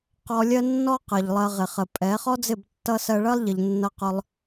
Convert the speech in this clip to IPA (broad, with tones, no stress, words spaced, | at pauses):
qɔ˧ lʲɜ˦nːɔ˦ qɜ˨ʎlˠɜ˧ʁɪ˨ χə˨pʼɛ˨˦ χɔ˦d͡zɪ˦˨btːʌ˧ sɜ˧ɭɜ˦lˠʎɪ˨ʎ nːʌ˧qʊ˧lˠ